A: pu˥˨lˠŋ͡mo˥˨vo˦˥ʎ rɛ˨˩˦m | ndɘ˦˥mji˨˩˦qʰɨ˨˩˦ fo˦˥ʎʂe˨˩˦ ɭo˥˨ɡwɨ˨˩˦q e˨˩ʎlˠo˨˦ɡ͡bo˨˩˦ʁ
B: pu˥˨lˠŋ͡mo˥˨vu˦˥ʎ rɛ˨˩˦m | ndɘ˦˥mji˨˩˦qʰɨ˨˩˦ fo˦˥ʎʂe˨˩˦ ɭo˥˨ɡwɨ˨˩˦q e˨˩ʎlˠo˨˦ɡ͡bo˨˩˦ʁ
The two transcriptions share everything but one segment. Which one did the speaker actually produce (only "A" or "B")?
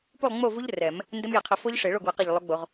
B